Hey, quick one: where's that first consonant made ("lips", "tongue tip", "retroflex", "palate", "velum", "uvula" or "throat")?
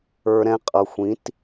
tongue tip